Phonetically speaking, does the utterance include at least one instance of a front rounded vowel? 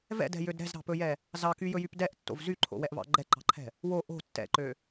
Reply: yes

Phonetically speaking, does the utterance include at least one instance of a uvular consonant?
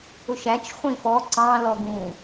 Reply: yes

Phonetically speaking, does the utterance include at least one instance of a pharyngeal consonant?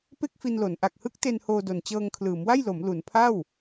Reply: no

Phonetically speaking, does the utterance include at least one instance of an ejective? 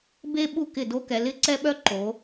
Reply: no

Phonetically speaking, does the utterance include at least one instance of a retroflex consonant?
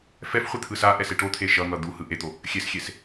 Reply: yes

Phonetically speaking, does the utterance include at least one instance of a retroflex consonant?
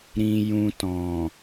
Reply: no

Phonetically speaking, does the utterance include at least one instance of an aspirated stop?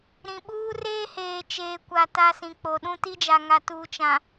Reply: no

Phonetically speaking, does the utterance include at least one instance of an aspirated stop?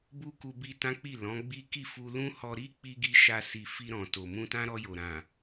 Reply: no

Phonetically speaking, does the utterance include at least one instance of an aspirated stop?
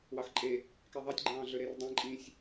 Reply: no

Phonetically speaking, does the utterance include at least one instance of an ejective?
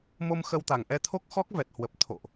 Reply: no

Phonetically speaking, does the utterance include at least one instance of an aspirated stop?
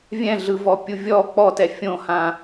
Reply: no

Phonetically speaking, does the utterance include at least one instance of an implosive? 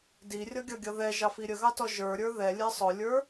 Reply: no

